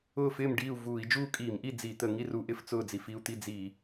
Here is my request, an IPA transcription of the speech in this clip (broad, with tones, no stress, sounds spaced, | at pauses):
ʊː˥˨ f ɪː˥˨ m ɖ iː˥˨ u̯ v uː˧˩˧ i̯ d͡ʒ uː˥˨ kʼ iː˧˩˧ m ʔ i˥˨ d͡z i˧˩˧ t̪ ə˧˩˧ ŋ i˥˨ r u˧˩˧ ʔ ɪ˥˨ f t͡s ʊː˥˨ d͡z i˧˩˧ f i˥˨ u̯ t̪ i˥˨ d͡z i˧˩˧